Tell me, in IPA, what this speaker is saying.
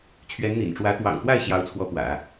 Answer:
t͡ɕʰɥɛ˧˥nn̪ḭ˨˩nʈ͡ʂwä˧˥ t̪wɑ̰˨˩ŋt̪wa˥˩ɪ̯ ɕjɑ˧˥ʊ̯t͡sʰwɔ˧˥ pwä̰˨˩˦

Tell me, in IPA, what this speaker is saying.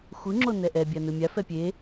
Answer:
xʷɯŋ͡ǁo nɛʔɛ bʲanɯmʲa fɛpʲe

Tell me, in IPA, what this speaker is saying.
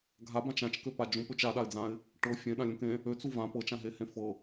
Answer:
ɡʱabãt͡ʃ ãt͡ʃkøpa d͡ʒũpøt͡ʃ aɗaɪ̯d͡zãɪ̯ | ʈɤ fʲẽɗãlʲũk ẽ | øt͡su vã pɤt͡ʃãɦehẽ fɤ

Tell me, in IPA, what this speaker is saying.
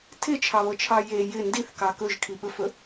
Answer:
tʰɪt͡ʃʰɑβɤt͡ʃʰɑ je jɪ ndiθkɑ kɵʒ kʰiɓɵfɵ

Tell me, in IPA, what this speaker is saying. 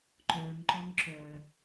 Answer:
ǃœŋǃɔŋ ǁœ

